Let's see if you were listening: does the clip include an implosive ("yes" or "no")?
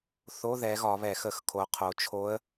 no